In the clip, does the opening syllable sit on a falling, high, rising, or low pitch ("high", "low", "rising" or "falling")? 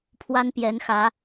high